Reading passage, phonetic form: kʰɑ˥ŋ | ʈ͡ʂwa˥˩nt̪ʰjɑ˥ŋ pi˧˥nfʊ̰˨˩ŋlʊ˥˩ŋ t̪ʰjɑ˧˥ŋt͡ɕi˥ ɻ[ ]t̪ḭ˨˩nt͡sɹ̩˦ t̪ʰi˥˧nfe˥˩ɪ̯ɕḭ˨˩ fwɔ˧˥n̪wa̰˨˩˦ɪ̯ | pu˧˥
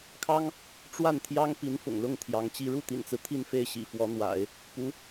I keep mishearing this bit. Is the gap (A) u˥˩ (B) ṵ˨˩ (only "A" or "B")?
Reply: A